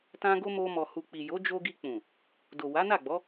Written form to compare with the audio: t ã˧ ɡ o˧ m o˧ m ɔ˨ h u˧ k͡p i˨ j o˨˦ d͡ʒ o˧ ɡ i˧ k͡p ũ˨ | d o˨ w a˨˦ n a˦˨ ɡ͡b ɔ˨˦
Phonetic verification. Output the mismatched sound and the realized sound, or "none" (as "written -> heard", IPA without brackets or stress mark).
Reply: u˧ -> u˨